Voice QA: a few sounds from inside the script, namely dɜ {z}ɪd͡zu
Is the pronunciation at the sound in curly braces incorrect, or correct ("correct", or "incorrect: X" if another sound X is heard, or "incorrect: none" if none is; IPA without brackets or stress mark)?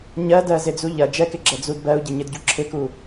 correct